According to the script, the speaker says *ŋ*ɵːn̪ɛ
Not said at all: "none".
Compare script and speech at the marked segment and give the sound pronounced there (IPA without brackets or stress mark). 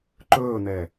ǃ